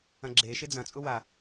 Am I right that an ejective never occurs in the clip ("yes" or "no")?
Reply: no